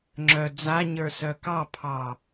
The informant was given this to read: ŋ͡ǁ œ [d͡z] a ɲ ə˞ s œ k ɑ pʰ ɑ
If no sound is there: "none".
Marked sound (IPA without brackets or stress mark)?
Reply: d͡z